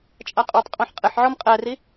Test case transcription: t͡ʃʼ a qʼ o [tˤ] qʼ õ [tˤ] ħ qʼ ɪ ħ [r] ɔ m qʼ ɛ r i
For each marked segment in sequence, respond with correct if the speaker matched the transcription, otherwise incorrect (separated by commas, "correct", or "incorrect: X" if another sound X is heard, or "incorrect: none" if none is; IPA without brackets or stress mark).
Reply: correct, incorrect: none, incorrect: ʕ